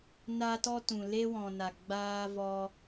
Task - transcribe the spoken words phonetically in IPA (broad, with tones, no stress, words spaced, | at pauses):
na˧tɔ˧tũ˨ le˧wɔ̃˨na˨ ɡ͡baː˧vɔ˧